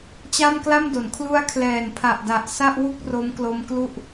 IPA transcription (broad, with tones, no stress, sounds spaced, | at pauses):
t͡ɕ a˥˩ m k l a˥˩ m d o˩˦ n kʰ l u˦˥ a̯ kʰ l ɛː˨˩ n pʰ a˨˩ ʔ d a˨˩ ʔ s a˥˩ ʔ w u˥˩ k̚ r o˦˥ m k l o˦˥ m k l u˥˩ ʔ